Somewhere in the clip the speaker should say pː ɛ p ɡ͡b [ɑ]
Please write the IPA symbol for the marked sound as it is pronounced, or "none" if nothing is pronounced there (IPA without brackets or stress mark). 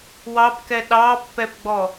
ɔ